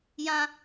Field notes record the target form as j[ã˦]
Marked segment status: correct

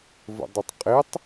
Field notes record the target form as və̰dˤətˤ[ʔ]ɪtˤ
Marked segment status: incorrect: qʼ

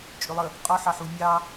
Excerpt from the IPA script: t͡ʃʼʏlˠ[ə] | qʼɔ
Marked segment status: correct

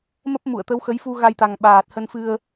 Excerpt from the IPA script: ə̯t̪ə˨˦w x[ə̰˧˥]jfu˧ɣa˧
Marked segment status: incorrect: ə˨˦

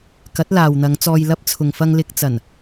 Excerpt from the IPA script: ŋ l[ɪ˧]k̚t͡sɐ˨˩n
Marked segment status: correct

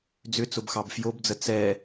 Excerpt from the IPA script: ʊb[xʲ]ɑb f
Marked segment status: incorrect: x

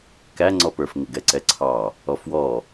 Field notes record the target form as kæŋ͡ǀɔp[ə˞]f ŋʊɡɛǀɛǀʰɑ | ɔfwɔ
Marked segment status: correct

